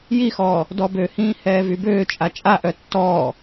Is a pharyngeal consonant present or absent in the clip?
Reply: absent